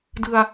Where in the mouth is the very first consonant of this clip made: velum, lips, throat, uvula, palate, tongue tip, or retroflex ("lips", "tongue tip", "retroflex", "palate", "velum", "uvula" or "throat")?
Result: tongue tip